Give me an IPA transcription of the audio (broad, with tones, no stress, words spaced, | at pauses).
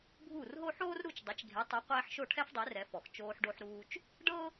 bʱuː˥˩rɦo˥ ħoː˥rɾu˥˩t͡ʃ dˤe˩˥t͡ʃɡʱe˩˥tˤu˩˥ qʷɛː˧ħʃo˥˩ʈʰɛ˥f dˤe˩˥r ɛ˩˥fɔ˩x t͡ʃoː˧ħɖo˧ħɾuː˧t͡ʃ | ɖɤ˥